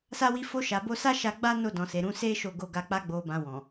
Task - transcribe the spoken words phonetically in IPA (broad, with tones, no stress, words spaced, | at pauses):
sa˧wi˧ fo˧ʃa˨ bo˧sa˦ ʃa˧ɡ͡ba˦ no˧ dɔ̃˨se˨ɾũ˨˦ se˦ ʃo˦˨ɡo˧ɡa˧k͡pa˦ ɡ͡bo˧bã˧ wɔ̃˨